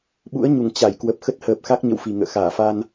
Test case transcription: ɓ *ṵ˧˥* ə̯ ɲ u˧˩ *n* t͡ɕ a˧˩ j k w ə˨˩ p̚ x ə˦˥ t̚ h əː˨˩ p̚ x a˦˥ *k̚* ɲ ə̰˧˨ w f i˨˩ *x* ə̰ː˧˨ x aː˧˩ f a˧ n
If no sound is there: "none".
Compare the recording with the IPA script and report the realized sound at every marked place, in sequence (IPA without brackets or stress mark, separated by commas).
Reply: ṵ˧˥, ŋ, k̚, ŋ